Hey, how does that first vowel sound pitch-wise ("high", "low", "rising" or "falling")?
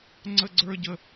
high